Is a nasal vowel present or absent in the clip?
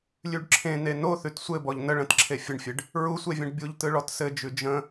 present